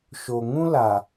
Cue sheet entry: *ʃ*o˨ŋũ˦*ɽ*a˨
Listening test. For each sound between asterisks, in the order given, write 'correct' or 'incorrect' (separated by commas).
correct, incorrect